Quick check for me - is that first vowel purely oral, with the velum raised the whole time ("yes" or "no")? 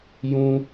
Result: no